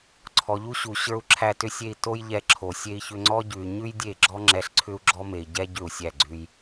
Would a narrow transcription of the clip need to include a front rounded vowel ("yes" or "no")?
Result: yes